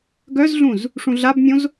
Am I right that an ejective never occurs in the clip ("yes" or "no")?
yes